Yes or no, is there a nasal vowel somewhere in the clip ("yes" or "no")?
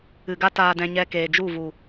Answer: yes